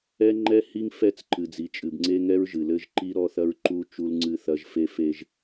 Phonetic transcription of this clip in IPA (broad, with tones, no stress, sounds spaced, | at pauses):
ɛ˦ ŋ͡ǃ ɛ˦ h i˦ ŋ f ɛ˦˨ t͡s ǃ ɨ˨ d͡z i˨ t͡ʃʼ ɨ˨ b ŋ͡ǀ e˦ ŋ ɛ˦ ɹ ʒ ɨ˨ l ɘ˦ ʒ ǃ i˦ ɾ ɔ˦ θ ɐ˦ ɹ ǃ u˦ t͡ʃ u˦ l ŋ͡ǀ ɨ˦ θ ɐ˦ ʒ f e˦ f e˦ ʒ